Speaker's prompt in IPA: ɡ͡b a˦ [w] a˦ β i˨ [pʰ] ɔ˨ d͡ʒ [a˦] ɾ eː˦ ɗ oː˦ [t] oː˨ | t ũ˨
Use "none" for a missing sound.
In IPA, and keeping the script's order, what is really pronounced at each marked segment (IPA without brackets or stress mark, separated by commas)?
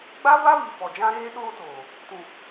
v, f, ã˦, t